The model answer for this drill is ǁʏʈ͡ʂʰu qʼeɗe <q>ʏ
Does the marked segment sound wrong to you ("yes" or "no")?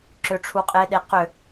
no